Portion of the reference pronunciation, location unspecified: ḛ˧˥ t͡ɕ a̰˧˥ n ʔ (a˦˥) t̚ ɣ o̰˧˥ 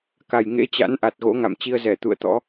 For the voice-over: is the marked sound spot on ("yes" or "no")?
no